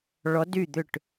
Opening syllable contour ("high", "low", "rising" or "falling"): rising